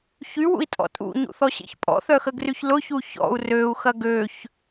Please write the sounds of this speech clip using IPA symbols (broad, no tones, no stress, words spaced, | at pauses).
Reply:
çywṵi̯tʼɔ̰ tʼṵɲṵθɔɕḛç pʼɔ̰θœxəɡryç lʊçu çɔ̰u̯ røu̯xɐ ɡøç